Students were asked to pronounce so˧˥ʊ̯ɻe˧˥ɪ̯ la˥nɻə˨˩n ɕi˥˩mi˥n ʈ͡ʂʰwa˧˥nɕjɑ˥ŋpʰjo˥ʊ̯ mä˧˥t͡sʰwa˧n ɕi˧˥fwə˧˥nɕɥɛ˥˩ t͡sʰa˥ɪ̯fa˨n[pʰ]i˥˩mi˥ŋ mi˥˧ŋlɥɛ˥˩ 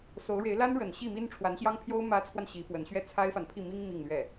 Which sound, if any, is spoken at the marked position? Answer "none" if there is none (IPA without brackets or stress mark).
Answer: pʰ